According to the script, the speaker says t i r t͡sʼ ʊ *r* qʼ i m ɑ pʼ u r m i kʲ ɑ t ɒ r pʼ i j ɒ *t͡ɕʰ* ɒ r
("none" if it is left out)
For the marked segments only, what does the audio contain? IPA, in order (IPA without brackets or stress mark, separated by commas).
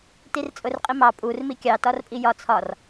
r, t͡sʰ